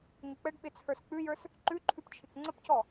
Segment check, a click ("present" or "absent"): present